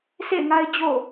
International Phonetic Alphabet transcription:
sʰḛ˦˨ɪ̯ŋa˦ɪ̯ d͡ʑo̰˦˨

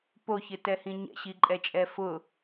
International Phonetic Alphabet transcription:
poçɪtɛhĩ ɲɛ̰ɕiǃʼɛt͡ʃʼɛ fʊ

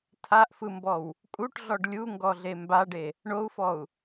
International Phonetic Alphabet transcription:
t̪ʰaʔfɯmbɔw | kʼuʈɮɔɖ lʲuŋɡɔɮe mbaɖe | ɳou̯fɔu̯

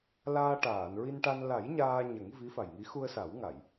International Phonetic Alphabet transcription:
laː˧ʈaː˨˩˨n ɹi˧nʈa˧n la˨˩˦j ɲaː˧ɲə˨˩˦ŋ vi˧˥fa˨˩jŋi˧˥ xu˧ə̯sa˨˩˦wŋa˨˩˨j

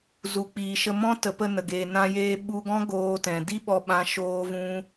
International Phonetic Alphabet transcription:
zu˨k͡piː˨ʃə˧ mɔ̃˦tə˨˦ pə˧nə˨ ɡe˨ nã˧jeː˧ ɓu˧ɡɔ̃˦ ɡoː˧tɛ̃˨ di˦ɓɔ˧ɓã˧ ʃoː˦vũ˦

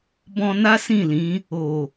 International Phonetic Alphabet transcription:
bɔ̃˧na˦sĩ˦˨lĩ˨˦ | o˨

